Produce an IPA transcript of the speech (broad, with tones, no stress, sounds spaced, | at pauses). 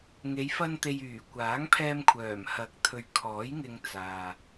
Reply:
ŋ e˨˧ j f ɐ˧ n t̪ e˨ j yː˨˩ kʷ aː˨˥ ŋ pʰ ɛː˧ m kʷʰ œː˨˩ m h ɐ˨˥ k̚ t̪ʰ ɵ˨ ɥ kʰ ɔː˨˥ j ŋ ɪ˧ ŋ t͡s aː˨